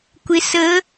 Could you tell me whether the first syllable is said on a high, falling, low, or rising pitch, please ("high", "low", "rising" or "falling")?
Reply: rising